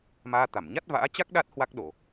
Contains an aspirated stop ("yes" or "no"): no